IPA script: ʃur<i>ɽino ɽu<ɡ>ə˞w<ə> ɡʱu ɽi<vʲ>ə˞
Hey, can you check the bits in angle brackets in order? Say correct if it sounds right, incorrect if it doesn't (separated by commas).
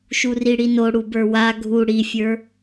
correct, incorrect, incorrect, incorrect